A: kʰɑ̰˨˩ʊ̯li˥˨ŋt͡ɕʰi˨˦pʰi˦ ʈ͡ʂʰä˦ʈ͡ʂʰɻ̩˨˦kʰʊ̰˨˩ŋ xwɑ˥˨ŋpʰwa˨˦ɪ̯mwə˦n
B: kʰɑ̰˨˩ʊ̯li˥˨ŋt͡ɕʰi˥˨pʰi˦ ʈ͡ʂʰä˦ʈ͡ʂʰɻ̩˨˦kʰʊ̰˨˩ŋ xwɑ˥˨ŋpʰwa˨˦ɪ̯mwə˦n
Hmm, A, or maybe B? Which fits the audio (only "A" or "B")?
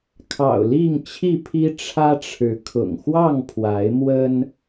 B